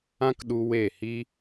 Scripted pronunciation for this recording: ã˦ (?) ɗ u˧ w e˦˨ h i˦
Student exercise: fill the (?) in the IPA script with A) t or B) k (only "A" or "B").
B